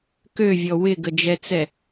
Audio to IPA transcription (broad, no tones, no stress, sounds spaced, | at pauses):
k ø vʲ ɔ w ɪ ɡ ə d͡ʒ ɛ t͡s ɛ